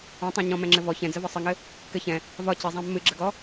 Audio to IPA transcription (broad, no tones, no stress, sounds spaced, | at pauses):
ɔ̃ tˤ ã ɲ ɔ̃ m ɛ̃ ŋ͡ǁ ɘ v ɔ ç ɛ̃ d͡z ə v ɒ sˤ ɘ ŋ ɘ | k ɘ ç ɛ̃ | v ɒ c ɪ zˤ ã mː ɨ ɡ͡ǁ ə ɡ ɔ